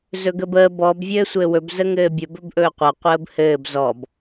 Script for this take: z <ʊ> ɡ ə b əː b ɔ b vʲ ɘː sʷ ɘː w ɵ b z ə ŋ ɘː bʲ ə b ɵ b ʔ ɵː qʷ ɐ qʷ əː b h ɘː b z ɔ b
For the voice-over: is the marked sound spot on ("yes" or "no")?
no